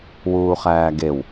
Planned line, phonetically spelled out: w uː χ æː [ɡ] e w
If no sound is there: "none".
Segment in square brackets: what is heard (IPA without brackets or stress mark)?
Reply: ɡ